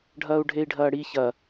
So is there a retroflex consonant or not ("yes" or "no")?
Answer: yes